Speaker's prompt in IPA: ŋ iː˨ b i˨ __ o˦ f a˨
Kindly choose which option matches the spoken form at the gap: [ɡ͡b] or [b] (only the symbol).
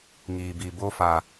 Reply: b